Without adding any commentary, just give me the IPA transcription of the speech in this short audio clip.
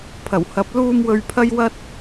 pʰ ɐ˨˩ w h ɐ˨˥ p̚ l uː˧ m w ɵ˧ ɥ pʰ ɐ˥ j w ɐ˥ t̚

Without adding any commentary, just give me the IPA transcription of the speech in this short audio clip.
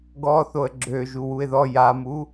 ɡ ɔ θ o ə̯ ɡ͡ǁ ø ʒ u w u ɪ̯ ð ɔ j a m u

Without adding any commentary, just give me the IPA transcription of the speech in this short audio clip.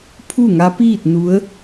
pʰ u˥˨ ŋ a˧˥ p iː˥˨ t̚ n u˧˥ ə̯

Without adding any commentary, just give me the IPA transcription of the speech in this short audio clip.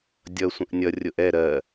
dʲ ʌ sʷ ə̃ ʔ nʲ ʌ rʲ ʊ ʔ ɛ ɾ ɜ

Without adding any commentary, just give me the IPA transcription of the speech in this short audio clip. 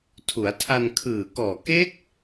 tʰ u˩˦ a̯ tʰ a˧ n kʰ ɯː˨˩ k ɔː˨˩ k e˦˥ k̚

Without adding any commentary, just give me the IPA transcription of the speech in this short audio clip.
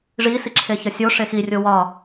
ʐ i s i ǁʰ e ç ɒ sʲ o ʂ e x i rʲ o w ɒ

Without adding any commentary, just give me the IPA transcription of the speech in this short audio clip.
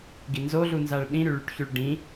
ɡ i n z o ɮ u n z a ɭ ɗ ĩ ɾ y ɭ y ʈ ç y ɭ ɖ ĩ

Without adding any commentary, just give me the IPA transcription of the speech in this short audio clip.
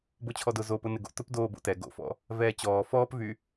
b o t͡ɕʰ ɔ d ʊ z o p ʊ n ɪ ɡ o̰ t ʊ p d oː b o̰ t ɛ ɡ o̰ f ɔ̰ | v ɛː t͡ɕ ɔː f ɔː p v y

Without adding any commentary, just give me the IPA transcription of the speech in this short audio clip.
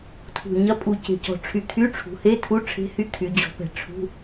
tʰ ṳ˨˩ ɲ ɐ˧˥ pʼ u˨˩ c e̤˨˩ c ɔ̤˨˩ ʈ͡ʂʰ y˨˩ kʰ y˧˥˧ ʈ͡ʂʰ ṳ˩˧ h e˧˥˧ tʰ u˧˥˧ ʈ͡ʂʰ e̤˧˥ h y˧˥ kʰ y˩˧ d͡ʑ ɔ̤˩˧ p ɛ̤˨˩ ʈ͡ʂʰ ṳ˧˥˧

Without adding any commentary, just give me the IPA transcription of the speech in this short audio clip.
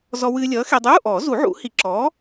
z ɔ˧ w ɨː˧ lʲ ʌː˨˥ x e˧ dˤ uː˧˥˧ ʔ ɔː˨˩˦ z u˨˩˦ ʕ ṵ˨˩˦ h i˨˩˦ ǁ ɔː˨˥

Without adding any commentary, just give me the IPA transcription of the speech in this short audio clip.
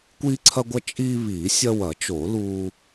kʷ iː˦ ǀʰ ɐ˦ ɡʷ ɐ˦ t͡ʃʼ iː˦ β iː˨˩˦ sʲ ɐ˦ w ɐ˨˩˦ t͡ʃ o˨˩˦ l uː˦

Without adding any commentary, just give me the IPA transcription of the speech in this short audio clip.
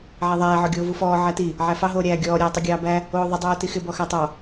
ʕ æ ðˤ æː ʕ ɔ ɡʲ oː v u f ɔː ʕ æ t i | ʕ æ f ɑ ɦ oː ɾʲ æː ɡʲ ɔː ɾʲ æː tˤ o ɡʲ ɑː b æ | oː ðˤ i dˤ oː t i x ɪ b ɔ x æ tˤ ɑ

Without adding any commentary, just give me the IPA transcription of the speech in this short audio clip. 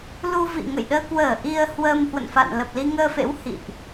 l u˧ v ḭ˧˨ ŋ ə̰˧˨ j ɗ əː˧ k w əː˧˩ ʔ i˧ ə̯ h w əː˧ m h w ə̰˧˨ n f a̰˧˨ n l ə˨˩ p̚ l i˧ ŋ əː˧ f ḛ˧˥ w h ḭ˧˨ ʔ

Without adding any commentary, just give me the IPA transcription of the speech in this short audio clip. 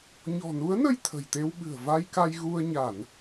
ɲ ɔ̤˨˩ n u˨˦ ə̯ n ə˧ j t̪ʰ ə̤˨˩ j t̪ e˧ w ɓ ɨ̤˨˩ ə̯ v a˧ j k a˧ j ɣ u˧ ə̯ ɲ a˧˩˨ n

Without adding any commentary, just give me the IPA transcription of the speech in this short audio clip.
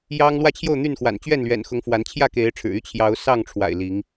j ɑ˦ ŋ l w ä˥˨ t͡ɕʰ j o˥˨ ʊ̯ n̪ y˥˨ n x w a̰˨˩ n t͡ɕ ɥ ɛ˥˨ n l ɥ ɛ̰˨˩ n x ʊ˨˦ ŋ f w a˨˦ n t͡ɕʰ j ä˥˨ k e˨˦ ɪ̯ ʈ͡ʂʰ ɻ̩˨˩ y˦ t͡ɕʰ j ɑ˨˦ ʊ̯ s ɑ˥˨ ŋ ʈ͡ʂʰ w a̰˨˩ ɪ̯ l i˨˦ ŋ

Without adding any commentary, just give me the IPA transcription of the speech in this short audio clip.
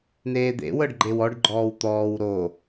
n eː d̪ ḛ w ɤ ɖ ɡ͡ǃ e w ɔ ɖ ɡ͡ǃ ɔː w t̪ ɔː w ɾ o

